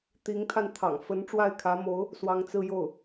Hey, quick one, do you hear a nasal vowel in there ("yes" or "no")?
no